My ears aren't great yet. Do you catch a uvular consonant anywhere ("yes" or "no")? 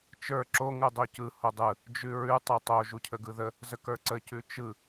no